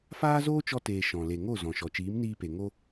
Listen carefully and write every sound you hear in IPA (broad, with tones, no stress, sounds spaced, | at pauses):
f aː˦ z oː˦ t͡ʃ ɔ˧ t eː˨ ʃ ɔ̃˨ l e˨ ŋ o˦˨ z ɔ̃˨ ʃ ɔ˨ t͡ʃ iː˨˦ m n iː˧ p e˨ ŋ o˦